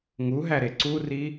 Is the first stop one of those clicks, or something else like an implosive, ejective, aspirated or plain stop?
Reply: click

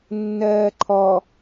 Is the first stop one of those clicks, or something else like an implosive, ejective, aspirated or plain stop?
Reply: click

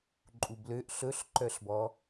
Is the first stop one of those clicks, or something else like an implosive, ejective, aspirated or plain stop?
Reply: click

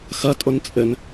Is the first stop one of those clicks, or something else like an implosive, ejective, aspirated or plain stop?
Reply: ejective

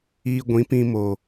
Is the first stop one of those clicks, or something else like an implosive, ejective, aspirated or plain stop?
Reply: plain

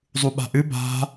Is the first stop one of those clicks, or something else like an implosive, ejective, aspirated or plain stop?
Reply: implosive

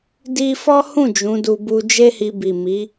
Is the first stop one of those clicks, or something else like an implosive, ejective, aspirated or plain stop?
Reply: plain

